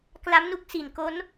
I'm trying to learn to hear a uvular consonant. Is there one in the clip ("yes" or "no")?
no